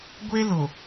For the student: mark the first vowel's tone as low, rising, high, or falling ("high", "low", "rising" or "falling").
high